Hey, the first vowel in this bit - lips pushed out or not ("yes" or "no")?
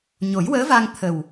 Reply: yes